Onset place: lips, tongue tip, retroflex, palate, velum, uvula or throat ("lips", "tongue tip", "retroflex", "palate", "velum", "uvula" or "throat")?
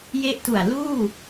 palate